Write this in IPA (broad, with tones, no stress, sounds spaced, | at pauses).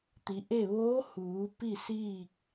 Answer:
t̪ i˩˧ ʔ e˥˨ ʋ oː˧˥ h uː˩˧ p i˥˨ s iː˥˨ k̚